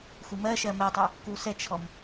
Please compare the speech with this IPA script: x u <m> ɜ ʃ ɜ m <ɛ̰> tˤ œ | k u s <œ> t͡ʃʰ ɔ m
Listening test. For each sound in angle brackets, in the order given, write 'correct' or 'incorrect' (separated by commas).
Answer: correct, incorrect, incorrect